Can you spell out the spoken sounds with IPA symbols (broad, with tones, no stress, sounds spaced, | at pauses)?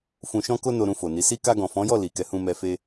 f ũ˨ ʃ ɔ̃˧ k o˧ n o˧ ɾ ũ˧ f o˨ n i˨˦ s i˧ k a˧ ɡ ɔ̃˨ f ɔ̃˨˦ j ɔ˦˨ l i˨ k ɛ˨˦ h ũ˧ m ɛ˧ f e˧